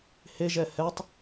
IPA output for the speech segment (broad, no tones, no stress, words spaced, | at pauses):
heʒɛ hɛtˤ